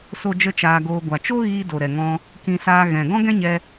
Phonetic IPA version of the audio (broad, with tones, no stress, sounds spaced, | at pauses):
s o˦ d͡ʒ ə˦ t͡ʃ aː˧ ɡ oː˧ ɡʷ a˨ t͡ʃ o˦ ɣ iː˧ d o˨ ɾ ɛ˨ ŋ ɔ̃˧ | k ĩ˧ s aː˧ ɣ ɛ̃˨ ɡ ɔ̃˦ ɡ ɛ̃˦ ɲ ɛ˧